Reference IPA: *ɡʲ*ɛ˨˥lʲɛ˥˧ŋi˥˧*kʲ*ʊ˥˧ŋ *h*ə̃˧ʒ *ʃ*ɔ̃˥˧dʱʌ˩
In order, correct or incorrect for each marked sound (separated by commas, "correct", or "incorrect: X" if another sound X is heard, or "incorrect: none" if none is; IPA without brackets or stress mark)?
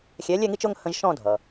incorrect: xʲ, incorrect: t͡ʃ, correct, correct